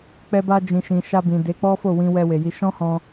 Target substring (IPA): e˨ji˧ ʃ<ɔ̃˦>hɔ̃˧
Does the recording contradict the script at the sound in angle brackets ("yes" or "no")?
no